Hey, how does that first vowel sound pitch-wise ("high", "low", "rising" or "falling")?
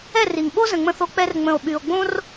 falling